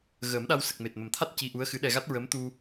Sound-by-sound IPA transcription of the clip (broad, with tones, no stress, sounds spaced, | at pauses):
ɣ əː˨˩˦ m ɗ a˧ w s ə˨˩ k̚ m e˨˩ t̚ m ə˨˩ m t̪ʰ a˦˥ t̚ c i˧ ʔ u˧˥ ə̯ x ɨ˧˥ ɗ ɛ˧ ɣ a˦˥ t̚ ɹ əː˧˥ m t̪ u˧